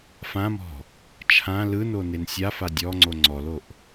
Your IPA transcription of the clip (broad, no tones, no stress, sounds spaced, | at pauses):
f ã m ɔ̤ | t͡ʃʰ ã l ɯ n o n e n sʲ a f a dʲ ɔ ŋ͡ǀ o ŋ͡ǀ ɔ l o ʔ